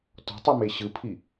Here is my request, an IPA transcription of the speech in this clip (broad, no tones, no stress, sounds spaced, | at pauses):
t ɔ̤ tˤ u m e ɕ ɯ pʰ i